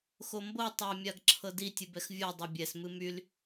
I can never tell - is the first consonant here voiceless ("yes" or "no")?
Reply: yes